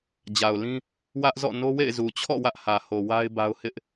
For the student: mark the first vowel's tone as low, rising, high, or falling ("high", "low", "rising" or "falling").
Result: low